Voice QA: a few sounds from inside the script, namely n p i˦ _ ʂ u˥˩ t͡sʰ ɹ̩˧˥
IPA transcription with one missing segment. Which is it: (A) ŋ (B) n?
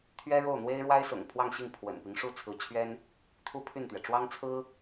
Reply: A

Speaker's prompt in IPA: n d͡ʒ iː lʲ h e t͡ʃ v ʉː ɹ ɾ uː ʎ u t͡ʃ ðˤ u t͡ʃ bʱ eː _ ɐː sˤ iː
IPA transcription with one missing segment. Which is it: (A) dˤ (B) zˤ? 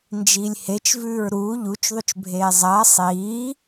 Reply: B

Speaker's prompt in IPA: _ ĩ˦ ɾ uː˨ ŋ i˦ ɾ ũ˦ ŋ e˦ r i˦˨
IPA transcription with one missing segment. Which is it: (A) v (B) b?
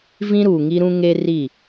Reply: A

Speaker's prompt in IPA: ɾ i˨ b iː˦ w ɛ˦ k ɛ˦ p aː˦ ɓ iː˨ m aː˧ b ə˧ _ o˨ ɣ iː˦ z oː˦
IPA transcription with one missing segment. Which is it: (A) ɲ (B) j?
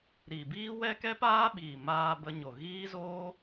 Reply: A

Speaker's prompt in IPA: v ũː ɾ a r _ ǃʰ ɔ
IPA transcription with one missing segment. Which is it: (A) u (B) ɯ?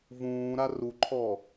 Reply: A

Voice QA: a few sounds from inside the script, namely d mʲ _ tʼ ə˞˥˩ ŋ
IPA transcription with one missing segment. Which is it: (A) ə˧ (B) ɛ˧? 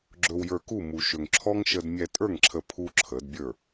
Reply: B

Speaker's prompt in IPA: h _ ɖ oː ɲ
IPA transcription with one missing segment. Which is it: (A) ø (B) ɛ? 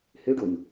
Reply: A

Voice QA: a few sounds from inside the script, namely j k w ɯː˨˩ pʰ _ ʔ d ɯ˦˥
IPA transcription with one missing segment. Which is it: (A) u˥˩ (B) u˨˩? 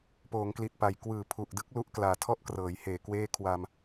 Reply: B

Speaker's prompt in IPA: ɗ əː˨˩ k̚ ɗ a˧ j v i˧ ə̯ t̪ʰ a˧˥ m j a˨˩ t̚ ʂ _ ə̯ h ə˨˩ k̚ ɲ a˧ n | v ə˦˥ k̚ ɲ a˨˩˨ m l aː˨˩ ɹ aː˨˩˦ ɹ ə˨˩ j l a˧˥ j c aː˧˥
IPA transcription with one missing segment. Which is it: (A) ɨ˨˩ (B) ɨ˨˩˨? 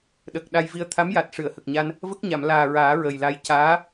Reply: B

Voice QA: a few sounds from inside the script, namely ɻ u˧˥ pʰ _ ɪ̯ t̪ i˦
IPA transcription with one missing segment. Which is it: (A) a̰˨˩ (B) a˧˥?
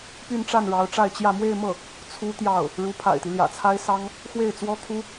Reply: A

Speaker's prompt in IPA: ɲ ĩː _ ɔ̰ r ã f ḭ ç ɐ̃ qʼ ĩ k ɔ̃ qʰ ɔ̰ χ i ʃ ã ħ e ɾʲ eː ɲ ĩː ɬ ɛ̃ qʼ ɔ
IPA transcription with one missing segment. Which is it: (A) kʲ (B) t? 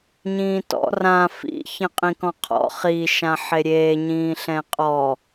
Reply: B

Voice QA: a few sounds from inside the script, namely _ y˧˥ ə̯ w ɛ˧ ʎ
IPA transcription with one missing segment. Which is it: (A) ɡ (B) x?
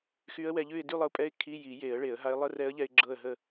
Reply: B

